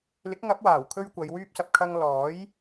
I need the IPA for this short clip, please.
lɪ˨˥k̚ŋɐ˨˥p̚waː˨˩wkʰɵ˧ɥ kʷɐ˨˧j wyː˧p̚sɐ˨p̚kʰɐ˧ŋ lɔː˨˥j

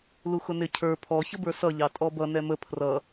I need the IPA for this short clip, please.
luxʊnɪ cʰə˞ pʰɔ çəbə˞sʌ ʎɑtʼɔbʌ nɛmə pʰrʌ

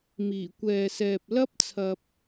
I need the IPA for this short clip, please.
miː˨˩kʷɛː˨sɛː˨p̚ lɐ˥p̚t͡sʰɐ˧p̚

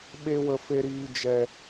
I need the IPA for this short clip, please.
ɓe˧wə˨fe˨ɾiː˨ d͡ʒɛ˨

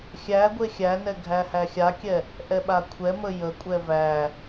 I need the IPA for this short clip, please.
xʲæ ɡʷexʲænɛ ɡʱæhæxʲakʲɛ | ʔɛɓakʷʰɛmə jəkʷʼɛ væ

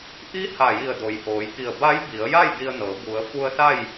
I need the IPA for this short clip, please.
ʔi˧˥ ha˧˩ji˧˩ə̯do˩˧j ʔoː˩˧jki˧˩ə̯ ba˧˥jbi˩˧ə̯ja˥˨j di˧ə̯nɤː˩˧ bu˩˧ə̯fu˧ə̯sa˥˨j

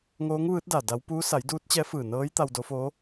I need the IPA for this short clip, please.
ŋoː˧˥ŋʋɯː˧˥t̚da˧˩ da˧˥w puː˧˥ sa˩˧jduː˧˥t̚t͡ɕɛː˧˥ fɯː˧˩nɤː˧˥jt̪a˧w do˧˥ foː˧˥

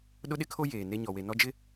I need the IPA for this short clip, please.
ɗʊ˦ɗɪ˦kʰo˦ jeː˨ne˦ ɲɔ˨we˨ nɔ˦d͡ʒɪ˦

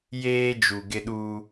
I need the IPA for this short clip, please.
jeː˦ d͡ʒu˨ɡɪ˦ɗuː˦

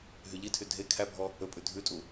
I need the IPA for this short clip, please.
ɦyʎitʰy dʱe kʰæbʱɔ | ɵpʼʉ dʱʉtʼu

